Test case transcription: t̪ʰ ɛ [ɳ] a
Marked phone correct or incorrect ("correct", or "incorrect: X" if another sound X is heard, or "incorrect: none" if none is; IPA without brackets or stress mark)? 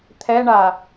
correct